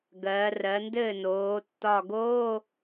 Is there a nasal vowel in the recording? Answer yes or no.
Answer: no